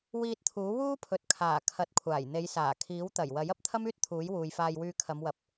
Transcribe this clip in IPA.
w iː˧ t̚ t̪ʰ uː˨˥ w uː˥ pʰ ɵ˨ t̚ kʰ aː˨˩ kʰ ɐ˨˥ t̚ kʷʰ aː˨˩ j n̪ e˨˧ j s aː˨˩ kʰ iː˨˥ w t̪ ɐ˨˩ j w ɐ˨˥ j ɐ˨ p̚ t̪ʰ ɐ˥ m yː˥ t̚ t̪ʰ uː˨˥ j w uː˨ j f aː˧ j w yː˧ kʰ ɐ˨˧ m w ɐ˨˥ p̚

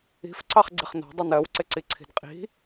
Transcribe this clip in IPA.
i̤ f ǀ ɑ χ ɡ͡ǀ ɪ χ n ɔ̤ dˤ u n ɜ w ǀ ɪ ǀ i ǀʰ i̤ d qʼ i̤

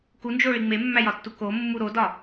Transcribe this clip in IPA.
k u n d͡ʒ o ɭ i ŋ͡m e mː æ j ɒ tː u k o mː u ɾ o d ɒ

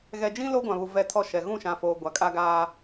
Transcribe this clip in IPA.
ɣ ɛ˨ d͡ʒ ĩ˦ l o˦ ɡʷ ã˨ β u˨ v ɛ˦ tʰ ɔ˦ ʃ ɛ˨ ɣ ũ˦˨ ʃ ã˨ f oː˨ ɡʷ a˨ kʼ a˦ ɡ aː˦

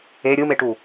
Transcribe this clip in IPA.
e ɾʲ ɯ m e ʈ u

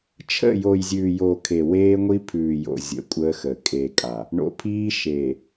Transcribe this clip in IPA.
t͡ʃʰ ə̰˦˨ j o˨ j zʲ ʉː˨ j o˨ kʰ e˨ w eː˦ ŋʷ i˦ pʰ ʉː˨ j o̰˨ zʲ ə̰˨˦ kʷʼ əː˦ x ə˨ kʼ eː˨ kʼ a˨ | ɳ o̰˨ pʰ iː˦ ʃ eː˨

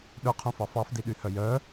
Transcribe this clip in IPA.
ɗ ɵ qʰ ũ f ɑ f ɑ f d i ɗ y h œ j œ

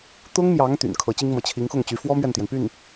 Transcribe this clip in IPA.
t̪ ʊ˥ ŋ m j ɑ˧˥ ŋ t̪ y̰˨˩ n kʰ ɤ˧˥ t͡ɕ i˥ ŋ m ɤ˧˥ t͡ɕʰ i˧˥ ŋ x ʊ˥˩ ŋ t͡ɕ y˧˥ f w ɔ˥ m ɥ ɛ˥˩ n t̪ j ɛ˩ n p y˥˩ n

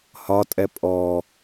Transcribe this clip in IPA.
h ɒ tʼ ɛ pʼ ɔ

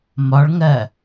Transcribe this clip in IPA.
m ɒ ɭ ŋ ɜ

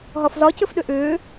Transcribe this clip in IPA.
ɦ ɒ f z ɒ c ɘ f ɗ ʏ ʔ ʏː

